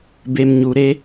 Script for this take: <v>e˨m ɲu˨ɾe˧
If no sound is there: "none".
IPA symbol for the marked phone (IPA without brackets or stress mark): b